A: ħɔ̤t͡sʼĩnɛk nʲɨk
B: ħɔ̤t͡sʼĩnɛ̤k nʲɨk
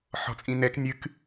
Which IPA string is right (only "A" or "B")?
A